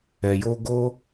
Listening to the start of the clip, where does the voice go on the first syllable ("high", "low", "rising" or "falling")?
low